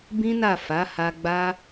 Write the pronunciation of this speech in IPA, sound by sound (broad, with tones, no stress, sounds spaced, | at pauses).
b ĩ˦ n a˦˨ f a˨˦ h a˧ ɡ͡b a˦